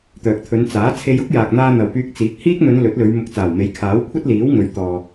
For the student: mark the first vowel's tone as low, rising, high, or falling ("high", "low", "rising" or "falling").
low